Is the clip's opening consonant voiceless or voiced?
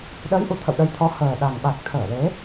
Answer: voiced